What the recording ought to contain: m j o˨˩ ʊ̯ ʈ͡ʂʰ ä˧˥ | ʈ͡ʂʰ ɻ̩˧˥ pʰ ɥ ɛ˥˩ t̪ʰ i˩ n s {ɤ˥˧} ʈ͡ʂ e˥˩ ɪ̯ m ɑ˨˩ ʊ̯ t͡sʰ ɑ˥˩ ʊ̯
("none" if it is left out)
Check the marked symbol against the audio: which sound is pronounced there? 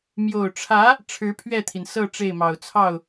ɤ˥˧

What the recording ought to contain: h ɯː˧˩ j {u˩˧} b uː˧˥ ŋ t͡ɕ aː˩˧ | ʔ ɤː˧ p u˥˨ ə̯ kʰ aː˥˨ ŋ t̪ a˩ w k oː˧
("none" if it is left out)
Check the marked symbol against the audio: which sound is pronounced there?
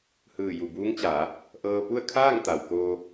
u˧˩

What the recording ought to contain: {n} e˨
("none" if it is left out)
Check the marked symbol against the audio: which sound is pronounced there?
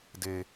d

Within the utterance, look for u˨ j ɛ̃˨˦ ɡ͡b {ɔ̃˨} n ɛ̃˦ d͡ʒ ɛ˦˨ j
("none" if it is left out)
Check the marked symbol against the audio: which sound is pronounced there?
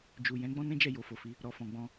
ɔ̃˦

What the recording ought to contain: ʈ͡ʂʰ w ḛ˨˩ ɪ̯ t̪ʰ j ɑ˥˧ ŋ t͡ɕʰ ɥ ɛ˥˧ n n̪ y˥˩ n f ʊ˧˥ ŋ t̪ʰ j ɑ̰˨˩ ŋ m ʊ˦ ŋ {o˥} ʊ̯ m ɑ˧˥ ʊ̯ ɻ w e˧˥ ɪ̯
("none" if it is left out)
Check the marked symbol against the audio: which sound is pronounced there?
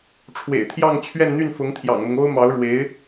o˥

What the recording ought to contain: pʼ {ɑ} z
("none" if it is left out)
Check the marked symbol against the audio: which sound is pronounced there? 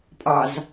ɑ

